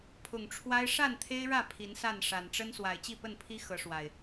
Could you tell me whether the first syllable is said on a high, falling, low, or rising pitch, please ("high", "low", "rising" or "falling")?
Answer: low